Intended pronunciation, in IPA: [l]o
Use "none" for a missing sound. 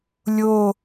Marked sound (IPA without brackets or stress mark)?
lʲ